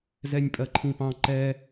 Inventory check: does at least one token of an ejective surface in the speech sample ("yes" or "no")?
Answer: yes